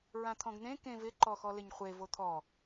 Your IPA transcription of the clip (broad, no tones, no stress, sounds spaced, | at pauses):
ɹ ã t̪ʰ ɔ̃ ɡ n̪ ẽ k ẽ v ɪ ǃ ɔ x ɔ l ɪ ɲ χʷ e v o t̪ʰ ɔ